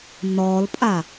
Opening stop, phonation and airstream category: ejective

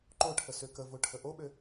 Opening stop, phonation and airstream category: click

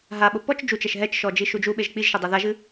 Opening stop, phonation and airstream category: implosive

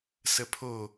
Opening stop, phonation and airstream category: aspirated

